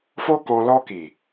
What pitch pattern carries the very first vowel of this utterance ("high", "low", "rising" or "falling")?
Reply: high